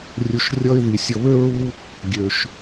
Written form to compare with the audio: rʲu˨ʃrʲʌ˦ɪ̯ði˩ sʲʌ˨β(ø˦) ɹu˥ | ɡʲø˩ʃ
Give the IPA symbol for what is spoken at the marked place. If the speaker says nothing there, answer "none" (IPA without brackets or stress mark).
ø˥